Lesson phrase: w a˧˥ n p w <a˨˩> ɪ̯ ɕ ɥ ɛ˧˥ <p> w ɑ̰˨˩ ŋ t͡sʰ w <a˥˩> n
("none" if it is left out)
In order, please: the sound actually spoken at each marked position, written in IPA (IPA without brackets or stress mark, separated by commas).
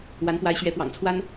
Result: a˧˥, p, a˥